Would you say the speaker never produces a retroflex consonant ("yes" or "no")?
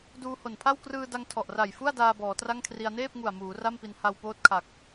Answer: yes